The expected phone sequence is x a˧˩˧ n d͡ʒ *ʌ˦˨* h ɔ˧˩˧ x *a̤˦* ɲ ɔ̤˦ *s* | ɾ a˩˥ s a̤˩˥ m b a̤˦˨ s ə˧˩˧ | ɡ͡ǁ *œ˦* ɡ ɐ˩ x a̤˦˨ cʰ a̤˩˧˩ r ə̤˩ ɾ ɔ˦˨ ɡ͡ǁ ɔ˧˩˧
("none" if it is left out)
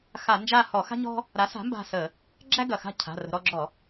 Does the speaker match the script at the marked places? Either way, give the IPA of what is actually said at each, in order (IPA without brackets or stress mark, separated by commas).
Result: a˦˨, a̤˦, none, æ˦